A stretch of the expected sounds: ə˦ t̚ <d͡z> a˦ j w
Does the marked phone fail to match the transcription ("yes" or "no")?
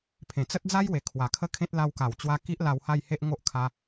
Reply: no